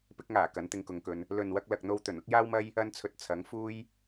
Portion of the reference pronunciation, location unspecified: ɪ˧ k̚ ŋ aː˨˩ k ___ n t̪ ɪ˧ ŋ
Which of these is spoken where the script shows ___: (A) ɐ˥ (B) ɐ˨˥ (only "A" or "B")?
B